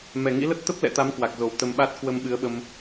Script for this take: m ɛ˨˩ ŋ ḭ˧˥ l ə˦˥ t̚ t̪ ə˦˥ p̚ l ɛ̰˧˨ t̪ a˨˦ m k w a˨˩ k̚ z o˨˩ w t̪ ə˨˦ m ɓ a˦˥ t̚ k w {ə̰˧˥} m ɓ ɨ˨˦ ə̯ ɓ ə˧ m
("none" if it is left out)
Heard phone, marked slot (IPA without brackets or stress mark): ə˧